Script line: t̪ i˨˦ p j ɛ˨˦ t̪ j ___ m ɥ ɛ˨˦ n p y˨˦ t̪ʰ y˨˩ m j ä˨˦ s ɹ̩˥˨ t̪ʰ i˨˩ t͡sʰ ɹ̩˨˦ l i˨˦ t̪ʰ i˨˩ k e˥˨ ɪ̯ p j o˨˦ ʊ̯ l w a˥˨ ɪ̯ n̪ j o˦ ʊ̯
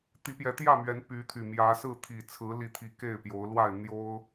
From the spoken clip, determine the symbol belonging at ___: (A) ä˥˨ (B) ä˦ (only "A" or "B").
A